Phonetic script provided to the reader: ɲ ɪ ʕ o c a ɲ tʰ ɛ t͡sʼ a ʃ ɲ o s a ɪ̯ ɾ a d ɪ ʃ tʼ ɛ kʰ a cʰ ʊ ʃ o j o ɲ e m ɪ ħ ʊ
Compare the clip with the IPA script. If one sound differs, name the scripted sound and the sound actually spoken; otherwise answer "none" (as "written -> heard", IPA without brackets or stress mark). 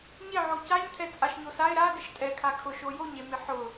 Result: cʰ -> kʰ